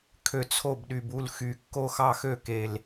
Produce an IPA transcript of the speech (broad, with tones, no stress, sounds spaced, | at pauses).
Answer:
kʰ ø˨˩ t͡sʰ o˥˩ b ɗ y˨˩ b u˥˩ l x y˨˩ kː o˥˩ x ɑ˥˩ x ø˥˩ k e˨˩ l